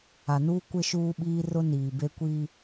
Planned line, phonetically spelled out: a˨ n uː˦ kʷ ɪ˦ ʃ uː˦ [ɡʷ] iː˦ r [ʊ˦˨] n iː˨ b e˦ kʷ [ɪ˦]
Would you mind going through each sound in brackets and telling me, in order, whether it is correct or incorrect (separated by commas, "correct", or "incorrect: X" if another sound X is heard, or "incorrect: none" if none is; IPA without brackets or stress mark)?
incorrect: ɓ, incorrect: ʊ˦, incorrect: i˦